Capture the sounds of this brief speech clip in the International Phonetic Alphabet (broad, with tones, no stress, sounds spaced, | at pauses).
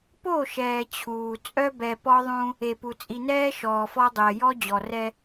p o˦˨ ʃ ɛː˨ t͡ɕʰ uː˨ t͡sʼ œ˦ b ɛ˨ p ɔ˦ ðˤ ũ˦ | e˨ p u˨ t͡sʼ i˨ n ɛː˦ ʃ ɔː˨ f ɔ˦ dˤ əː˨ j ɔ˦ d͡ʑ ɔ˨ r ɛ˦